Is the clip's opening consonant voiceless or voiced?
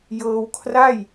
voiced